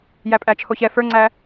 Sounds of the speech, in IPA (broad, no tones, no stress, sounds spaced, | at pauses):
j æ pʼ æ t͡ʃʰ o ç ɛ f ə˞ ŋ͡ǀ æ